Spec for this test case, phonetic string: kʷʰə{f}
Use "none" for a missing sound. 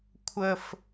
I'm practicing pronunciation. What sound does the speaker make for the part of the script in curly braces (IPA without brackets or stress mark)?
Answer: f